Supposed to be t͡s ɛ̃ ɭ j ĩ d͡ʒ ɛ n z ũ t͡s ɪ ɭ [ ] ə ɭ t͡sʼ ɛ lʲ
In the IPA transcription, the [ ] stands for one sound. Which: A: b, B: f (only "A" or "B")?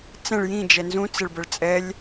A